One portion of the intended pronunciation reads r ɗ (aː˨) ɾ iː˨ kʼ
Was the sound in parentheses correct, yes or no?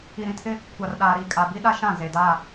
yes